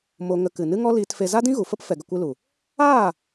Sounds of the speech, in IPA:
m o˧ ŋ ə˧ k ɨ˨ n ɨ˦ ŋ ɔ˦ l iː˧ t f e˧ z a˦ d ĩ˦ ɣ u˨ f ə˦ p f ɛ˧ ɡ ə˧ kʷ ɨ˦ l u˨ | aː˦˨

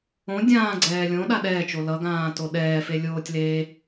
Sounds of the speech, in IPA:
õ dʲ ãː ɡ͡ǀ ɛː lʲ õ ɗ a ɗ ɛː t͡ʃ o l ʌ ɡ ãː t o ɗ ɛː f e lʲ oː tʲ l eː

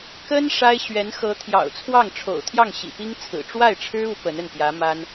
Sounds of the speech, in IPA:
k ə˥ n ʂ a˥ ɪ̯ ɕ ɥ ɛ˧˥ n x ɤ˧˥ t̪ʰ j ɑ̰˨˩ ʊ̯ t͡sʰ w ɑ˥˩ ŋ ʈ͡ʂʰ o̰˨˩ ʊ̯ t̪ʰ j ɑ˥˩ ŋ ɕ ḭ˨˩ p i˥ ŋ t͡sʰ ɹ̩˨˩ ʈ͡ʂ w a˥˩ ɪ̯ ʈ͡ʂʰ ɻ̩˥ u˧˥ p ə˧˥ n ə˥˩ n p j ä˧˥ m a˥ n

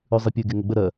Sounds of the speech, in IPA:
ʉ zˤ i pʲ ʉ ɡ e ŋ ə ɡ͡b ə ɾ ɜ

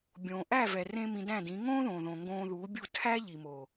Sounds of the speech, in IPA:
bʲ õː˨ ʔ æ˦˨ v ɛ˨ r ẽ˧ m ĩ˧ d æ̃˦˨ d ĩ˨˦ ŋ õː˦ ð õ˨ ð õ˨ ŋ ɡ õː˧ ð uː˨˦ bʲ u˦˨ tʰ æ˦ ʎ i˨ m o˨

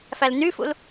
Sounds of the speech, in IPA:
f æ l n y f ṵ l

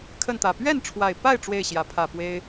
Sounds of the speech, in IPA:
kʰ ə˥˨ n t̪ ä˨˩ p ɥ ɛ˥˨ n ʈ͡ʂʰ w a˨˩ ɪ̯ p a˥˨ ɪ̯ ʈ͡ʂ w e˥˨ ɪ̯ ɕ j ä˨˦ pʰ ä˨˩ p w e˦ ɪ̯

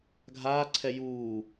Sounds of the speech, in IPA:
ɡʱ aː ǀʰ ɛ j uː

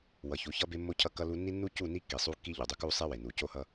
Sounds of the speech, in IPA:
w ʌ˨ ç u˨˦ ç ʌ˦ b e˦ mː o˦ cʰ ʌ˦ kː ʌ˦ l u˦ nː i˦ nː u˦ c u˦˨ n i˦ kː i˨ sˤ u˦ kː i˦ ʎ u˨ dˤ u˦ k u˦ sˤ e˦ w e˨ n u˨ c o˦ h ʌ˦

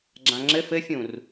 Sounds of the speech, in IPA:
ɡ͡ǁ ã ŋ͡ǁ ɘ f ɘ fʲ ũ r

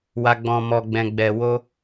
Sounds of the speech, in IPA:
w a˨ ɡ͡b ɔ̃˨ m ɔ˨ ɡ͡b ɛ̃˨ ɡ͡b ɛ˨ w o˧

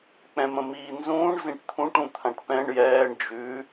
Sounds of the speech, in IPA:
k͡p ɛ̃ m ə̃ m iː n z ũː ɳ z ĩ ʈ t̪ʰ ũ ʈ ũ t̪ʰ ã ʈ p ɛ̃ ɳ j ɛː ɳ d͡ʒ ʉ

